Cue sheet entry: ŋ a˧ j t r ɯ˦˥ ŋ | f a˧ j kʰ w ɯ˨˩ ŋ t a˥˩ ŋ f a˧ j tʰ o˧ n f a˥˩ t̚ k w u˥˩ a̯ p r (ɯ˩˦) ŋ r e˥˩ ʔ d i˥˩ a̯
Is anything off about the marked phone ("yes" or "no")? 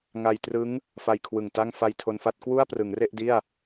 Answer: no